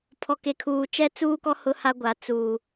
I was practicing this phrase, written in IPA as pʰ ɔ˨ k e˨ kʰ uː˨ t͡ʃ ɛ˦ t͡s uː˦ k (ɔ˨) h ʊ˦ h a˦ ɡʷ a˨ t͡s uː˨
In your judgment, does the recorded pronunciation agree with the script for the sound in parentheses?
no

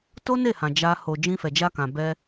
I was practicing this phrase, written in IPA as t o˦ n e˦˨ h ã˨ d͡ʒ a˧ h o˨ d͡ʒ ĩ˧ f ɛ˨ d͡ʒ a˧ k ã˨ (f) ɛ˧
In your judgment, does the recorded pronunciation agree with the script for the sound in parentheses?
no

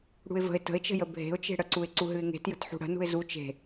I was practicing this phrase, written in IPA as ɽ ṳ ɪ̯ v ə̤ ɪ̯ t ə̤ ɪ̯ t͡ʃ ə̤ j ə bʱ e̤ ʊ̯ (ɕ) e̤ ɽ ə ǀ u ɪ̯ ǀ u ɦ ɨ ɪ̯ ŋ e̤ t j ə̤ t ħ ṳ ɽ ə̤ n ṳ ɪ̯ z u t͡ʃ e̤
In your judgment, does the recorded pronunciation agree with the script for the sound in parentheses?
no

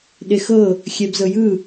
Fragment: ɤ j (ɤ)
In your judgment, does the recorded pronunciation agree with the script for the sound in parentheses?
no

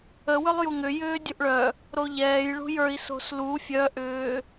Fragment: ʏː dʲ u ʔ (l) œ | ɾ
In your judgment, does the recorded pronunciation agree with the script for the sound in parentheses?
no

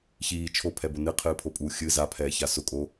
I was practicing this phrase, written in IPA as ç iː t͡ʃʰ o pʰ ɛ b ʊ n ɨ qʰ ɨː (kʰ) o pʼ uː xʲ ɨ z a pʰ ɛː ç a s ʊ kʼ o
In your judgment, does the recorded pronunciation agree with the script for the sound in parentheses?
no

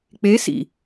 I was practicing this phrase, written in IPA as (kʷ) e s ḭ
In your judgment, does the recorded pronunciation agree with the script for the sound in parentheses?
no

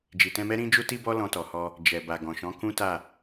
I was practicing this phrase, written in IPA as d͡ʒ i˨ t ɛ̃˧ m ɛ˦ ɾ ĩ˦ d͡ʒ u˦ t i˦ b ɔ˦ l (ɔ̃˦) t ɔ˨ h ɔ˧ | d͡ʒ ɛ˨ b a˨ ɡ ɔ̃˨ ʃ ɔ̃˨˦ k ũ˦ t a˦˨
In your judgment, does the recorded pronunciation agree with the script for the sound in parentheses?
no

